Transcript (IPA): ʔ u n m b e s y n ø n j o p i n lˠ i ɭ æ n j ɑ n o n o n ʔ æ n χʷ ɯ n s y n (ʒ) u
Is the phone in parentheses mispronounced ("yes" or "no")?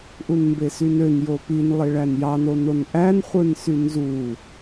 yes